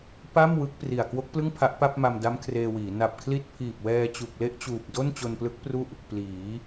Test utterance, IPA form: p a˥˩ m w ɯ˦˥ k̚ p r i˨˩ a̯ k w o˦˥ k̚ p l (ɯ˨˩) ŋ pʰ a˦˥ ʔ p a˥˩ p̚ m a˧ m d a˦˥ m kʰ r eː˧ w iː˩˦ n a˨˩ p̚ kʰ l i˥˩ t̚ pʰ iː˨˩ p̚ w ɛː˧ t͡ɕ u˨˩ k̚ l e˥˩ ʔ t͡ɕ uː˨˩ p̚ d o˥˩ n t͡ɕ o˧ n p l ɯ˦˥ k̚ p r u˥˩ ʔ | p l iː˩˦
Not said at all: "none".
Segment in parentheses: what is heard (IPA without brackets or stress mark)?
ɯ˥˩